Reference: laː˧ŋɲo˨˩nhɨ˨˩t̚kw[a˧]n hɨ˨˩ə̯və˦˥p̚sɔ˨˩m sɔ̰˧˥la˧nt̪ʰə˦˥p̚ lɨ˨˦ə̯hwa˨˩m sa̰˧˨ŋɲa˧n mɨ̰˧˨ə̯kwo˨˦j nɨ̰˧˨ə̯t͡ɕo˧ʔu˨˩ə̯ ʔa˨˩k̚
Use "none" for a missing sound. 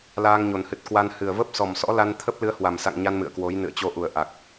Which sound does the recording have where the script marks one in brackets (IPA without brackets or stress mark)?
a˧